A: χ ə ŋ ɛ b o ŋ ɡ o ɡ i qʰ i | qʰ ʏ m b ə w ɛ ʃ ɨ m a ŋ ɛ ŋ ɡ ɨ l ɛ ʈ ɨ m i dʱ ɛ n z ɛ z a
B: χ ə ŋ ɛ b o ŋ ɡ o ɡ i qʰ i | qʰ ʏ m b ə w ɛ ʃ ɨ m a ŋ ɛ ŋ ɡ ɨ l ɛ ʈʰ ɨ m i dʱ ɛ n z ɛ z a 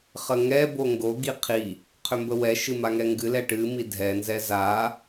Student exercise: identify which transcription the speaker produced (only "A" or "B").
A